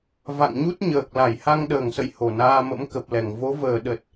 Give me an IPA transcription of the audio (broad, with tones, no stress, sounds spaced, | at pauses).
v a̰˧˨ ŋ ɲ u˦˥ t̚ ɲ əː˨˩ k̚ l a˧˩ j h a˧ ŋ ɗ əː˨˩ ŋ s ə̰˧˨ j h o˨˩ n aː˧ m ə̰˧˥ m k ə˨˩ p̚ l ɛ˧˩ ŋ v o˨˦ v əː˨˩ ɗ ə˨˩ t̚